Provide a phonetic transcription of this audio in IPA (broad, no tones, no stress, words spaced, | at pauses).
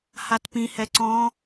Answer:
hatpĩ hɛǀɔ̃